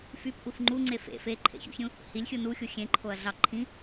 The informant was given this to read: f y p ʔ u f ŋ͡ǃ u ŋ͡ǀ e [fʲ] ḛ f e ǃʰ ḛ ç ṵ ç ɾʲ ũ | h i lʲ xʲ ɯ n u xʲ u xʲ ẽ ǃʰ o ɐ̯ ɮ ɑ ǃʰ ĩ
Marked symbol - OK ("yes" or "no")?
no